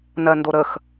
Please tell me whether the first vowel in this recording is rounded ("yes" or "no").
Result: no